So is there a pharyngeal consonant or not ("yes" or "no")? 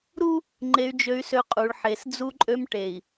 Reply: yes